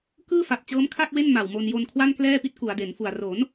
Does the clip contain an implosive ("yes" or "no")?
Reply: no